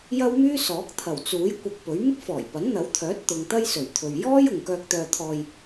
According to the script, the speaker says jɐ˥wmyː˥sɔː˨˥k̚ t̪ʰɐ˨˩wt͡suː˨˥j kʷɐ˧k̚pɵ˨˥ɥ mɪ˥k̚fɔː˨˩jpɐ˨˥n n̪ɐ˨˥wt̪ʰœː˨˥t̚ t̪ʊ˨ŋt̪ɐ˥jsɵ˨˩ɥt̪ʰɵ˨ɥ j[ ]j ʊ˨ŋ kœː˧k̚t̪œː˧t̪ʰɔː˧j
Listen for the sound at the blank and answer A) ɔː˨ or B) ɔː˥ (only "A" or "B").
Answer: B